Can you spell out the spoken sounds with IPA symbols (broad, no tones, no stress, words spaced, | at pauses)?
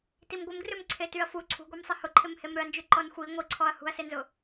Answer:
timɡʷɪmɡrʏm ǀʰetyɐ̯fu ǀʰṳɡʷemsˤɪ hʊǃʰɪm hemɾʏɐ̯nd͡ʒy ǃɔnxʷi ŋʷiǀʰɔɐ̯ hṳɐ̯senzʊ